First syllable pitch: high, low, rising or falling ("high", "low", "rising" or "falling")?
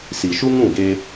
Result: low